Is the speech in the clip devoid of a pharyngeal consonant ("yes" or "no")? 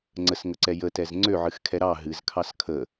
no